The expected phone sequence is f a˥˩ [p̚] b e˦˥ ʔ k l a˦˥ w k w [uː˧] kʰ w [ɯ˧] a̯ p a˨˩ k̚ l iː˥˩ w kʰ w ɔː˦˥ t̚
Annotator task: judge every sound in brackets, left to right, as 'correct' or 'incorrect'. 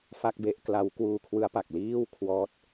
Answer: incorrect: k̚, correct, incorrect: ɯ˦˥

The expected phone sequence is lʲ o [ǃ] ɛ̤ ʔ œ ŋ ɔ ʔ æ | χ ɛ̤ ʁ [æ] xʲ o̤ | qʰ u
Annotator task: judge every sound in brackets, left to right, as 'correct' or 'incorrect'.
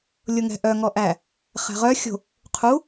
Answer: incorrect: ŋ, incorrect: œ

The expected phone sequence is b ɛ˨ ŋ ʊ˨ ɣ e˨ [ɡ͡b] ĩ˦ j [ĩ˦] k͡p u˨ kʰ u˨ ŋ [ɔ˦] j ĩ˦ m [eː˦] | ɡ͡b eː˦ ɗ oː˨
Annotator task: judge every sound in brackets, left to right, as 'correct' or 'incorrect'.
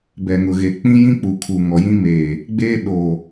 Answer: incorrect: k͡p, correct, incorrect: ɔ˨, incorrect: eː˨

